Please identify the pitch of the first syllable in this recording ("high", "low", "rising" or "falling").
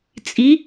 rising